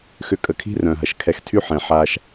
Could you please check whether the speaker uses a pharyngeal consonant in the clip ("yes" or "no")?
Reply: yes